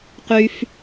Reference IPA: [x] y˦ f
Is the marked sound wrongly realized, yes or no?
yes